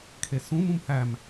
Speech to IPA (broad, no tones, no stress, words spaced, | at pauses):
kʰesũm ũmhæm